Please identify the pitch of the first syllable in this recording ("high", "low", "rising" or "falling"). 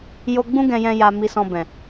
high